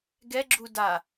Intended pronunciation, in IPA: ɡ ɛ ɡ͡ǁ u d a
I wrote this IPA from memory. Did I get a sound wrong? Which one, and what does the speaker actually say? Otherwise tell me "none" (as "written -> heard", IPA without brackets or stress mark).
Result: none